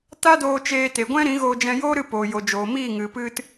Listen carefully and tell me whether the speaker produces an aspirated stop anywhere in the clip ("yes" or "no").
no